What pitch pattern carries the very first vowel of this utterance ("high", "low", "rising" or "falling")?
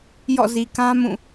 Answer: falling